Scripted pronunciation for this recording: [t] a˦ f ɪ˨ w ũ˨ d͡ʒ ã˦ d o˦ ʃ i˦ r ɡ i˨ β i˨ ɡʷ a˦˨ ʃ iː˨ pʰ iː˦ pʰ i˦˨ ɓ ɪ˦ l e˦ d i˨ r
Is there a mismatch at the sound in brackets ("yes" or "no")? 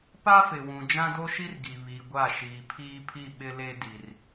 yes